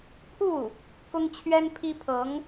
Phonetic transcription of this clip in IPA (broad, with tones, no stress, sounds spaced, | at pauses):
pʰ u˥˩ | k ʊ˥ ŋ t͡ɕʰ ɥ ɛ˥ n pʰ i˥ pʰ ɤ˧˥ ŋ